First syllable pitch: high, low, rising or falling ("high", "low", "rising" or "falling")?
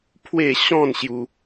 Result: falling